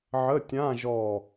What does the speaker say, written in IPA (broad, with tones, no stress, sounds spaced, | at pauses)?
ʕ ə˧˥˧ tʲ ã˧˥˧ ʒ ɔ˧˩